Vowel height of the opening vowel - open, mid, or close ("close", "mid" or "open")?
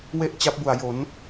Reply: mid